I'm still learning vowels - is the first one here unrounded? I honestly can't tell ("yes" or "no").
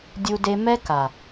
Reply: no